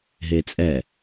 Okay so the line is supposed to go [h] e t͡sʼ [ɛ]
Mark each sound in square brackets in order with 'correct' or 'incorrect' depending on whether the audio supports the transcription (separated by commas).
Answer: incorrect, correct